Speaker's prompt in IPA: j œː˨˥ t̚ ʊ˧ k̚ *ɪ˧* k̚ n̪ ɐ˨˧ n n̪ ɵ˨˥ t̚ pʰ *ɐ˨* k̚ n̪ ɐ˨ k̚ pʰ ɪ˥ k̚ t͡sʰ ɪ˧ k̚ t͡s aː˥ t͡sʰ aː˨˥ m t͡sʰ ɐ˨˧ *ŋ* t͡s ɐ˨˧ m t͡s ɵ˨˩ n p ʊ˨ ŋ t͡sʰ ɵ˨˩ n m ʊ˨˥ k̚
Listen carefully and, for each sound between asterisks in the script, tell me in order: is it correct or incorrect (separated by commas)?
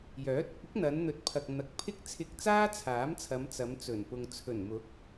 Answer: incorrect, correct, incorrect